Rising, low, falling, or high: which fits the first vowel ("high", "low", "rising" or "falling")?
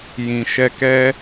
low